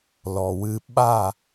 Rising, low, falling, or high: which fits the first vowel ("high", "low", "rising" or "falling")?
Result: low